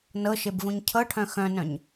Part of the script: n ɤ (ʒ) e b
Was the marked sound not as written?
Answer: yes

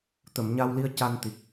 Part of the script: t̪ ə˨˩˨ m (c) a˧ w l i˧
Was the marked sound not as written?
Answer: yes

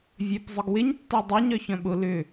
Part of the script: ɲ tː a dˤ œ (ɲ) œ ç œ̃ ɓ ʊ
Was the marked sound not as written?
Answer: no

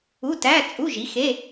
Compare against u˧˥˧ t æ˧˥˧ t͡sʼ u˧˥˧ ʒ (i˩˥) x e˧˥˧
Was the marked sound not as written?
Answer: no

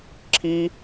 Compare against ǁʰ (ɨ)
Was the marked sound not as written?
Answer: yes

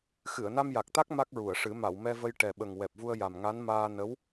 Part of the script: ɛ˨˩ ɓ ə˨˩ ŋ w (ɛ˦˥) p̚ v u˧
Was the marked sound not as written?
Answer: yes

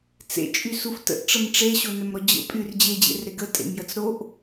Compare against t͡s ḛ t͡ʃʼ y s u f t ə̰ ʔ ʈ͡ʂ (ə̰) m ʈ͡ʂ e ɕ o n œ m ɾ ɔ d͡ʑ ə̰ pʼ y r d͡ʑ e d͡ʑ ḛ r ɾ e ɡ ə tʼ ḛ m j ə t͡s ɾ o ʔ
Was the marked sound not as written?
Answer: yes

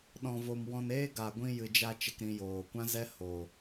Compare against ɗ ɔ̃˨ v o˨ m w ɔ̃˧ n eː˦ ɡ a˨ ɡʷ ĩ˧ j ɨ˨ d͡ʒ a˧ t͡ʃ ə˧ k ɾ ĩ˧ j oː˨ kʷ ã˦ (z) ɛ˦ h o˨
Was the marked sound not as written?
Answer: no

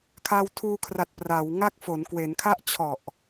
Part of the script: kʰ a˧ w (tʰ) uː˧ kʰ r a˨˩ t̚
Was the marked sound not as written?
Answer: no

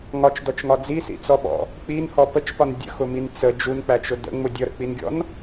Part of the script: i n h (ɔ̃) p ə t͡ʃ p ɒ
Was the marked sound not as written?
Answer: yes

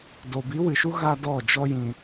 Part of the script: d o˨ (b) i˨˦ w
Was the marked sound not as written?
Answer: no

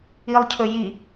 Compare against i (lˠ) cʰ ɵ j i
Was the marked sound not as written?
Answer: no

